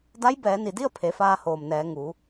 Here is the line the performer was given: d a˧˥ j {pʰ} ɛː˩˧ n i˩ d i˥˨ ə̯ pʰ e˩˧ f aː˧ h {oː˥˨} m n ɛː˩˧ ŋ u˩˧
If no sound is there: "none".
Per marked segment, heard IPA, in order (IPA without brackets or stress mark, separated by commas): b, oː˩